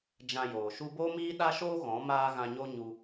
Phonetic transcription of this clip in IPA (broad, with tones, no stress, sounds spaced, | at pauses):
d͡ʒ ã˧ j oː˨ ʃ u˦ b oː˦ m iː˦ ɗ a˦ ʃ oː˦ ɣ ɔ̃˨˦ m aː˦ ɣ ã˧ ɲ o˦ ɲ u˧